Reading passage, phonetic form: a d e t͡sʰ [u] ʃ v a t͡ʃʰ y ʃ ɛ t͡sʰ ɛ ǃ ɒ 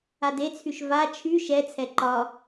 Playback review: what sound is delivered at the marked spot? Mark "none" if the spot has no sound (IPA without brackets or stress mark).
y